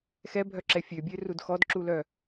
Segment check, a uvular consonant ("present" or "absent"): absent